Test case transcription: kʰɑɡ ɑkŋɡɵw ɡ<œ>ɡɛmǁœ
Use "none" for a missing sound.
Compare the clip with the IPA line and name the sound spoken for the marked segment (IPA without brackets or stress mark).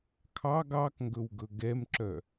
ɵ